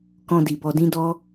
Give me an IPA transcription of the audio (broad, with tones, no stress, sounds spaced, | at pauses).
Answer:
k ɔ̃˧ d i˨ b ɔ˧ d ĩ˦ d ɔ˦